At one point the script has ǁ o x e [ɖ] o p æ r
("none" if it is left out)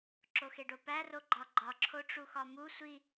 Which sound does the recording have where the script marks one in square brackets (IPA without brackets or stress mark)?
ɖ